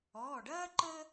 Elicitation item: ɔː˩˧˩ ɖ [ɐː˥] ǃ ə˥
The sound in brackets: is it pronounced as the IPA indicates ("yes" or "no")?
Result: yes